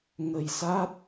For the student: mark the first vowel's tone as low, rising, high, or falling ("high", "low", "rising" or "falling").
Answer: low